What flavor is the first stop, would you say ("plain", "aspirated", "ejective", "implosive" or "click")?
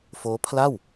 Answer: aspirated